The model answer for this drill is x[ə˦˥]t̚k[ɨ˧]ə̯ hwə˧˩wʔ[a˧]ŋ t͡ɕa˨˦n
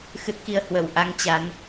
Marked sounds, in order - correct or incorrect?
incorrect, incorrect, correct

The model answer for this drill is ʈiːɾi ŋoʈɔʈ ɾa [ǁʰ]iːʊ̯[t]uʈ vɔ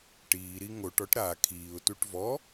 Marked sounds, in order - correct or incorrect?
incorrect, correct

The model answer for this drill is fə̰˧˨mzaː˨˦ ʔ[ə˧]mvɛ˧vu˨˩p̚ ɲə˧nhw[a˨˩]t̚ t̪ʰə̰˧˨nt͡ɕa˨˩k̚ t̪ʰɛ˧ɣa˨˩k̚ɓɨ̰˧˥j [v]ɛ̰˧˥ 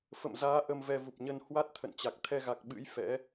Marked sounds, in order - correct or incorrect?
correct, incorrect, incorrect

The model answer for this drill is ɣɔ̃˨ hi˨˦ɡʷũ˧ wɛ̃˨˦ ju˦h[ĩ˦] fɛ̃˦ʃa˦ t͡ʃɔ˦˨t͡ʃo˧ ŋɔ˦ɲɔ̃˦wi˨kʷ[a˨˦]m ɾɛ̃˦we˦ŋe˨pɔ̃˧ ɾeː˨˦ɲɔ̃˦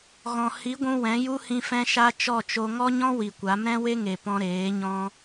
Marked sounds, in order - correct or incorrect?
incorrect, correct

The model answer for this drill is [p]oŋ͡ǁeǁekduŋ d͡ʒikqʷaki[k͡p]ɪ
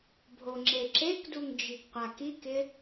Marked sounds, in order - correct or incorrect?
incorrect, incorrect

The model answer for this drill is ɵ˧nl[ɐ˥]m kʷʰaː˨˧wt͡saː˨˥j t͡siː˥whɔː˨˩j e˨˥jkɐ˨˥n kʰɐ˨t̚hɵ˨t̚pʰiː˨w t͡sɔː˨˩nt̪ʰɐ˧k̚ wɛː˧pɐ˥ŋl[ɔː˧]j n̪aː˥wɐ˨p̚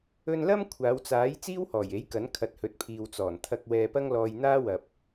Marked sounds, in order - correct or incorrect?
correct, correct

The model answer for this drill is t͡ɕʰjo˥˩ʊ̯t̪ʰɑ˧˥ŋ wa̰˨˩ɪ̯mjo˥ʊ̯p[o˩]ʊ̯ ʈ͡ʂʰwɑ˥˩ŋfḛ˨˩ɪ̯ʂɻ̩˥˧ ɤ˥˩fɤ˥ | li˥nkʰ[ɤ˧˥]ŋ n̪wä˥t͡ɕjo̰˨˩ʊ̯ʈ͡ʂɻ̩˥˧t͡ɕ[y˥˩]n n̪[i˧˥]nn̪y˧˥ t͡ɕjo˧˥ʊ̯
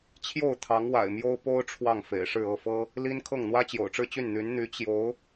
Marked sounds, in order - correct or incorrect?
incorrect, incorrect, correct, incorrect

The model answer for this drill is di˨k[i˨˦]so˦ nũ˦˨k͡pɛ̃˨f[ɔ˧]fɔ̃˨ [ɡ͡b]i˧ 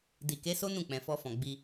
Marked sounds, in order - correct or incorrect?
incorrect, correct, correct

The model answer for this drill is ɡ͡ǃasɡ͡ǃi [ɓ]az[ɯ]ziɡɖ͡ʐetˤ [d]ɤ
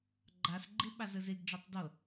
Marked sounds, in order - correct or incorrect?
correct, correct, correct

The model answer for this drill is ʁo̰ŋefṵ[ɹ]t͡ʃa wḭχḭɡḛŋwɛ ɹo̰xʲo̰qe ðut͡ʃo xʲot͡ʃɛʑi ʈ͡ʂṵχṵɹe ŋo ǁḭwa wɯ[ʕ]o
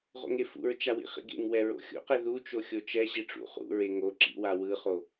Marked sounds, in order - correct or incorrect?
correct, incorrect

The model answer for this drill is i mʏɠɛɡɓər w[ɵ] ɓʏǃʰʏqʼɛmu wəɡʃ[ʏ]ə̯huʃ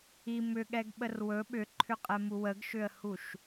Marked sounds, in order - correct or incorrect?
correct, correct

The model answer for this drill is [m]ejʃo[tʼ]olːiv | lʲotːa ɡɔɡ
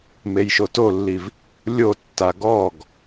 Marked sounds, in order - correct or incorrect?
correct, incorrect

